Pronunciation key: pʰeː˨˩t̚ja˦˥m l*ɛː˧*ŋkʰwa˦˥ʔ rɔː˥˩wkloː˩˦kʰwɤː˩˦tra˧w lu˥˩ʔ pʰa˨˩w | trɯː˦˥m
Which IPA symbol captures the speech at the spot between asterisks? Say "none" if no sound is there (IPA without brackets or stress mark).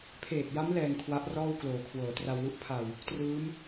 ɛː˧